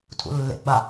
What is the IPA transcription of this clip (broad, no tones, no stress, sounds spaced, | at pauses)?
tʰ ṵ lː ḛ ɡ͡b a